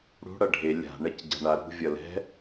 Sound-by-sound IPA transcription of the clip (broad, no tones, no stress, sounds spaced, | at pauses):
ɽ ṳ ɽ ʌ ɖʱ e lʲ a̤ ɳ ɛ c ɟ a̤ ɳ a ɾ ṳ vʲ ʌ l ɛ̤